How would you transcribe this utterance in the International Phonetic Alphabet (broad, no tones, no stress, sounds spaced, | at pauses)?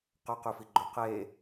q œ q y f i ɡ͡ǃ ø q e